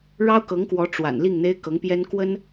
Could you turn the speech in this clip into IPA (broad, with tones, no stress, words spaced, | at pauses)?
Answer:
ɻɑ˥ʊ̯kɤ˧˥ŋkwɔ˧˥ ʈ͡ʂwa̰˨˩n li˥˩ŋn̪e˥ɪ̯kɤ˧˥ŋpjɛ˥n kwə˥n